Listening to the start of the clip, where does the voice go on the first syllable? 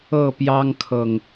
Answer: falling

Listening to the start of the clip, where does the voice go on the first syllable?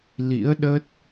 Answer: rising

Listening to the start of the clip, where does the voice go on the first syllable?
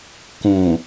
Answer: low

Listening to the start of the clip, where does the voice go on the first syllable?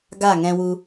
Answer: falling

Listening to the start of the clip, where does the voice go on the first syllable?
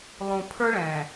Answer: low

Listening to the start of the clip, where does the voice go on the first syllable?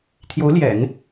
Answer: rising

